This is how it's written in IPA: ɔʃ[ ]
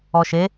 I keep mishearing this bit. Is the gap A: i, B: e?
B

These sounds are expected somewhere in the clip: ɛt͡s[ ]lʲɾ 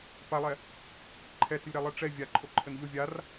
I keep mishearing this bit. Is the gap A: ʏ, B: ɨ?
A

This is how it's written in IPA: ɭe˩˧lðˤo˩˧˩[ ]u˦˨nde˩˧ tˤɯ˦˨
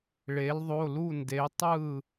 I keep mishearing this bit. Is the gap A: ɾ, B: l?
B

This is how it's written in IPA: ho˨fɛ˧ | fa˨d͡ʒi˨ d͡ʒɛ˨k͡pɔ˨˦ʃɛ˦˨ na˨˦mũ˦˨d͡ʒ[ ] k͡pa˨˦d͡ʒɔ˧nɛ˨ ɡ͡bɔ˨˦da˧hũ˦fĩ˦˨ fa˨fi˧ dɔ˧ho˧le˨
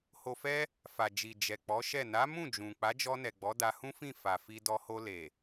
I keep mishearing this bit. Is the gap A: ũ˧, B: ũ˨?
B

